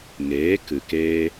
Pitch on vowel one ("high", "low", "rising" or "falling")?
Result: rising